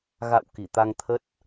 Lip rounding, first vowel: unrounded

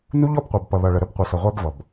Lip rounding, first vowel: rounded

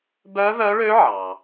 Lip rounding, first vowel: rounded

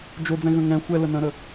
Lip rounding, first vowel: rounded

